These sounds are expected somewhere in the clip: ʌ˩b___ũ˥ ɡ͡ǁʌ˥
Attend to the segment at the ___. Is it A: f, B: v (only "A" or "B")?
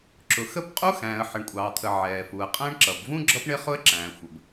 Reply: B